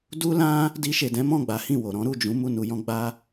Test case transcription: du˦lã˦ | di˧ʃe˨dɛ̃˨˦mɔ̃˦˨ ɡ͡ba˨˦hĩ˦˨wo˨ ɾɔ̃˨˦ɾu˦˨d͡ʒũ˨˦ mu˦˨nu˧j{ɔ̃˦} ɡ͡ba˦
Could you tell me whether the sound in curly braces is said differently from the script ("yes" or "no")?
no